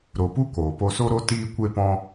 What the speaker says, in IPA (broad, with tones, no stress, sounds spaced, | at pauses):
ɾ o˨ p u˦ k oː˨ p o˧ s o˦ ɾ o˦ t iː˧ kʷ e˧ p ɔ̃˧